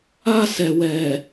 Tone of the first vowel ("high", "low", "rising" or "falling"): high